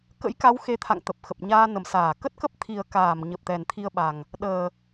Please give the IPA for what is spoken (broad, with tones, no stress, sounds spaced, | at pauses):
k ə̰˧˥ j k a˨˦ w x e˨˦ t̪ʰ a̰˧˨ ŋ t̪ ə˨˩ p̚ x ə˨˩ p̚ ɲ aː˧ n ə˨˩ m s aː˧˩ k ə˦˥ t̚ k ə˦˥ p̚ t̪ʰ i˨˩ ə̯ k aː˧˩ m ɲ ə˨˩ p̚ t̪ ɛ˨˩ n t̪ʰ i˧ ə̯ ɓ a˨˩ ŋ | ɗ əː˨˩